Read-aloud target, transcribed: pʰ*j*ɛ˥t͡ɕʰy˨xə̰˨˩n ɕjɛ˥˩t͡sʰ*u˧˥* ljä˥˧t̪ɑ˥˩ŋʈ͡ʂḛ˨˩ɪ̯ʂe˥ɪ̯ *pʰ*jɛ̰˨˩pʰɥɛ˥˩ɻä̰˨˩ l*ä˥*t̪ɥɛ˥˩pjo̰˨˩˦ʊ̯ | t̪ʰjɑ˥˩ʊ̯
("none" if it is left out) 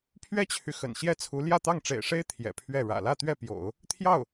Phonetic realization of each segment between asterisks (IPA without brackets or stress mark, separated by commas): ɥ, u˧˥, t̪ʰ, ä˥˧